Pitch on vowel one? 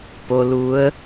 low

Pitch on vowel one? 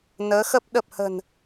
rising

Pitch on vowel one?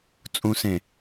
low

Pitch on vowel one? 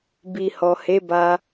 low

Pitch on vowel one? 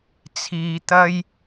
low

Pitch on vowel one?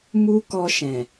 high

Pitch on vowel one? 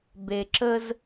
low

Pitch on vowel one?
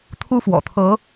high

